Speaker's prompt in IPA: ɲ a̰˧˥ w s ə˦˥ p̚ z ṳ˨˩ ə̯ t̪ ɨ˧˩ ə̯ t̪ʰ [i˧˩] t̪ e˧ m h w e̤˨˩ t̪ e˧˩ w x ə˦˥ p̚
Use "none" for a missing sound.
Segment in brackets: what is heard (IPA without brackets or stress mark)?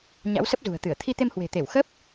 i˧